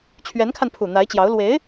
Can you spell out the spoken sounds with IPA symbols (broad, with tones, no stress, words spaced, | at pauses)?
t͡ɕʰɥɛ˧˥nkʰa˧npʰu˨˩ n̪a˧˥ɪ̯t͡ɕjɑ˧˥ʊ̯ lwe˧˥ɪ̯